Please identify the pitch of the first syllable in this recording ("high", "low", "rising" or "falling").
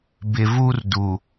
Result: low